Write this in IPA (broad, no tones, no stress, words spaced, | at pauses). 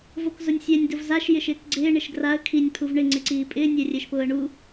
vokzʊnʲsʲɛnʲ dʊvzaʃ jɪʃɪːkɡ͡ǀɪː ɳɪʃɡraə̯ kʰinʲ pʰuvɳɪ ŋ͡ǀɪǀiːpʼɪː nʲɛrʲɛʃpʊːə̯ɳu